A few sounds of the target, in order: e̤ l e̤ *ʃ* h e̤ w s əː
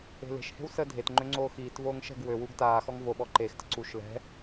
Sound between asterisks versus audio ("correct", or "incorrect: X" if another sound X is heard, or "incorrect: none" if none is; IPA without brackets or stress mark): correct